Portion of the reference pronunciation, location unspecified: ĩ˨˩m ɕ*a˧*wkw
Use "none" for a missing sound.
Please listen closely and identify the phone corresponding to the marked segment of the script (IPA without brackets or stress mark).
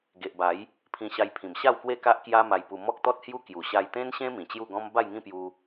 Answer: a˥˧